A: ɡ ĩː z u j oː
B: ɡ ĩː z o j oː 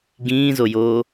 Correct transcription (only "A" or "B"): B